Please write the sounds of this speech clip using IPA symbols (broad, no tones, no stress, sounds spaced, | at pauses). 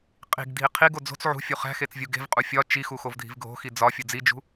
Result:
qʼ i̤ ɡ dʱ i qʰ i ɡ o d͡z o̤ t͡s ʕ ṳ fʲ u χ æ̤ x e t͡s vʲ u ɡ e̤ v qʼ u fʲ ɒ t͡ʃ i x u x o v dʱ i̤ v ɡʱ o̤ x i d͡z ɒ fʲ u d͡z i d͡ʒ ṳ